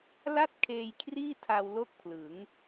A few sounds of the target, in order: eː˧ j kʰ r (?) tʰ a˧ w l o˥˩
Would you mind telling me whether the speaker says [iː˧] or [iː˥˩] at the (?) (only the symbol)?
iː˥˩